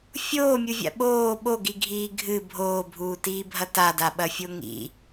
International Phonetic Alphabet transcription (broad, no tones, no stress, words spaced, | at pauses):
fʲoːmʲuvʲa̰ ɓoː ɓoɡiɡʱiː ɡʱɨ bʱoːbʱuːtiːbʱɐ tadaɓɐfʲo ŋḭ